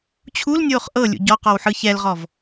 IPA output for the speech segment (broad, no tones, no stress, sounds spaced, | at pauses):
t͡ɕʰ u l nʲ oː χ ʔ ɤ lʲ ṵ ɟ ɔ q ɔ w ħ ɯ ç ɛ l ʁ ɔ v